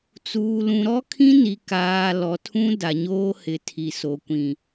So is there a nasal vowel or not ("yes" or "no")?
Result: yes